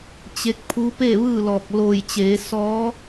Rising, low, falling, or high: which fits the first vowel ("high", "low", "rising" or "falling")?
rising